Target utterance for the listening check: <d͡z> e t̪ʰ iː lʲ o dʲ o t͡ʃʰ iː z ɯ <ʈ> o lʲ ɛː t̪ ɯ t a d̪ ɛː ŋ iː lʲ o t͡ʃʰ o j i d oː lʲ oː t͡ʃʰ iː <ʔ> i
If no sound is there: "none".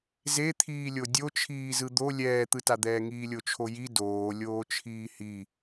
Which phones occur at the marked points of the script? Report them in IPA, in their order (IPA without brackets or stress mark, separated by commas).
z, d̪, h